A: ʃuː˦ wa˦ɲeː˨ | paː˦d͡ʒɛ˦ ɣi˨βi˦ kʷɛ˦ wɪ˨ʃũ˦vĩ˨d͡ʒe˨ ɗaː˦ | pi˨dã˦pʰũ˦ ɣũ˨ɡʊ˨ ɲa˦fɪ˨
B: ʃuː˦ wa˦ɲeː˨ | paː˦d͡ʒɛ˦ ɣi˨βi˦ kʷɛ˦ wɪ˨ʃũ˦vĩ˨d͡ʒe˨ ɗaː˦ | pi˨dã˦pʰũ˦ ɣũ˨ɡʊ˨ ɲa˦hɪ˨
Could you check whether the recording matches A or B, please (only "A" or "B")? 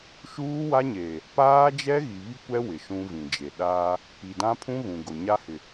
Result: B